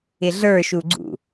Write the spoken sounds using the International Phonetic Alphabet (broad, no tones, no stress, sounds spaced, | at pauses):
ɪ ɮ ə˞ ʃ u ɡ͡ǀ ṵ